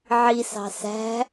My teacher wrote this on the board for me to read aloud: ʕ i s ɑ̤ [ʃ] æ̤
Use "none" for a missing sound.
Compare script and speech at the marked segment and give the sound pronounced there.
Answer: s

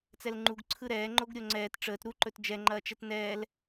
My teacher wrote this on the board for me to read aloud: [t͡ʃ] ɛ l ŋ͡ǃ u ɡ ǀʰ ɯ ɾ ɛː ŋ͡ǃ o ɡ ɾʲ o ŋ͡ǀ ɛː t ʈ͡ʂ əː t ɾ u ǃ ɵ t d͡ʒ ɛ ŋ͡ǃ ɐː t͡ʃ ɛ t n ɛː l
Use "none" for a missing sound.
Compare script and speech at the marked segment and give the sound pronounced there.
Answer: t͡s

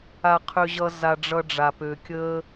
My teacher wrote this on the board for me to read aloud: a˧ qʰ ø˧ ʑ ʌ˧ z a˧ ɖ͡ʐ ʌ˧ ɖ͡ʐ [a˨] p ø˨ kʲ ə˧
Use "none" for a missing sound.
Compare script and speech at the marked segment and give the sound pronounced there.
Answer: a˨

